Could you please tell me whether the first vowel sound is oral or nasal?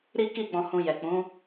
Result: oral